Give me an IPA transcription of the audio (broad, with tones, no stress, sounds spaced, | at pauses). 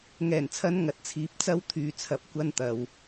ŋ ɛː˨˩ n t͡sʰ ɐ˨˧ n ŋ ɐ˨˥ t̚ t͡sʰ iː˨˥ p̚ t͡s ɐ˥ w t̪ʰ yː˧ t͡sʰ ɐ˧ p̚ kʷ ɐ˥ n t̪ ɐ˧ w